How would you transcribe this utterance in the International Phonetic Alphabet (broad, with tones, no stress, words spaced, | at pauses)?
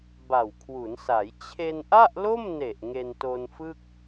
ba˨˩wkʰwu˩˦nsa˩˦j t͡ɕʰe˧nʔa˥˩ʔlo˥˩mne˨˩ʔ ŋe˧nto˧nfɯ˥˩k̚